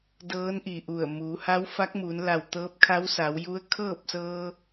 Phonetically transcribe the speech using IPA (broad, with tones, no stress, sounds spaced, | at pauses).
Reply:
d ɤː˧˥ n ʔ i˧˩ ʔ u˧˩ ə̯ m u˩˧ h a˧˥ w f a˧˥ k̚ m uː˩˧ n l a˧˩ w t̪ ɤː˧˥ p̚ kʰ a˧˥ w s a˩˧ w j u˧˥ ə̯ kʰ ɤː˥˨ p̚ s ɤː˧